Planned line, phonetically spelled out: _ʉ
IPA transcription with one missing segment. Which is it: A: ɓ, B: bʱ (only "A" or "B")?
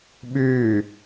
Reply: A